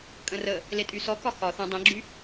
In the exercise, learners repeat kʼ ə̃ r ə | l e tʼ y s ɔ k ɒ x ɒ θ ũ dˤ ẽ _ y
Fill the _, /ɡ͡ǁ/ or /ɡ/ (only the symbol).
ɡ͡ǁ